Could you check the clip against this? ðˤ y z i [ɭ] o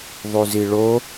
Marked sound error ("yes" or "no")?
no